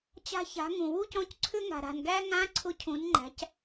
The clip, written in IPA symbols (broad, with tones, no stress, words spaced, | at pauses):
t͡ɕa̤˧ça̤˩˧ ŋũ˩wu˥cɔ̃˧˥c ǀʰʏ˧ŋa̤˩ɾa̤˩nɡæ˧ ŋã˧˥ ǀʰʊ˧˥ cʰũ˩˧n ŋ͡ǃæ̤˩˧c